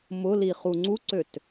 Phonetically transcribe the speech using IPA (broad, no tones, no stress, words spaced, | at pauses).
mʊliχu ŋ͡ǀuǀøt